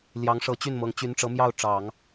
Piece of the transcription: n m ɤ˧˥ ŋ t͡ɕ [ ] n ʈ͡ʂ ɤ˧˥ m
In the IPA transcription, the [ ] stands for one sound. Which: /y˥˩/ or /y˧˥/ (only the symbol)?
y˧˥